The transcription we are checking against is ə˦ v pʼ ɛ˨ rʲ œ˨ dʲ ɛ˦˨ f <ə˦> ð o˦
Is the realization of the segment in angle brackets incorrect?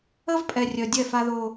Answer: yes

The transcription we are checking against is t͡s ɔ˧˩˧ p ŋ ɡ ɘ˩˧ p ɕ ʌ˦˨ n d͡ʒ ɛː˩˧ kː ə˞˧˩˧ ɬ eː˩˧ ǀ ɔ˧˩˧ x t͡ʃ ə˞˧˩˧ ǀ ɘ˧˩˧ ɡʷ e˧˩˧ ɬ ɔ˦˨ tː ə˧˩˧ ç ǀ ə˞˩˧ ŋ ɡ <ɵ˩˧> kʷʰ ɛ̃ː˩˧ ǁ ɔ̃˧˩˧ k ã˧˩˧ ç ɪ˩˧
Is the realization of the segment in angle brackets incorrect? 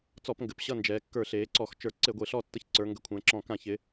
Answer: yes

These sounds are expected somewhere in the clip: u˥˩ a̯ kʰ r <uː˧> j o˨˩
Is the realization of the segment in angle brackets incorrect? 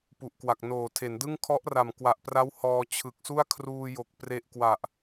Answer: no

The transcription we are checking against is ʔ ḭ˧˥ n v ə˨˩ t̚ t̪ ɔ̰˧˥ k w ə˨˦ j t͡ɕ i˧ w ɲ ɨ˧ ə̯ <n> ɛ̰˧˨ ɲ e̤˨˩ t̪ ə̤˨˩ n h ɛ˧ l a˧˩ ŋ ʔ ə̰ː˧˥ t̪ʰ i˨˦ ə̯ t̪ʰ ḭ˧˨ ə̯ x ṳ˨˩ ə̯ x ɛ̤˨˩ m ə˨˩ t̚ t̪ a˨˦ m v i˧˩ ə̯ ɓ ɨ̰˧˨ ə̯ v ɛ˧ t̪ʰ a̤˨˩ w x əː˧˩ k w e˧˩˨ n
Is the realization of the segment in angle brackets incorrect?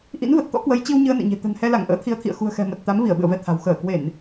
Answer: no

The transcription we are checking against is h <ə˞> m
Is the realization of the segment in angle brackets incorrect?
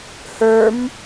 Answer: no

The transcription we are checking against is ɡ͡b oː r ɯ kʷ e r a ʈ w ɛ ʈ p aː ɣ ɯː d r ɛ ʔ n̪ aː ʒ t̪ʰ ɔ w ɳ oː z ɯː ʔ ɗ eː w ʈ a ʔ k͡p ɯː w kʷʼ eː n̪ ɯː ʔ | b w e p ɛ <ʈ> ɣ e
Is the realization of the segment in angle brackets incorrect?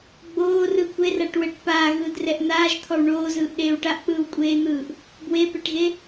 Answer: no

